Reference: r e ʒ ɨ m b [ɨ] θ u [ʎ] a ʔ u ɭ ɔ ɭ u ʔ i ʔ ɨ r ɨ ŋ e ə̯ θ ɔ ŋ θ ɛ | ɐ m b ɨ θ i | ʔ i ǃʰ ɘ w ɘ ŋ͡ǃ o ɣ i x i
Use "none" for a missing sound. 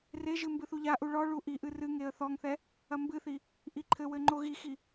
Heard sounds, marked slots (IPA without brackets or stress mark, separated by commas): ɨ, ʎ